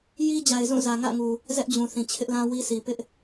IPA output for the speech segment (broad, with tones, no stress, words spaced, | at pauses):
ji˦d͡ʑa˨ɪ̯zũ˦˨ zä˨ŋä̰˦˨ŋu˨ | zɛ˦ʔd͡ʑũ˨θĩ˨ t͡ɕʰɪ˦ʔlã˦wi˦sʰi˨ pɪ˦ʔ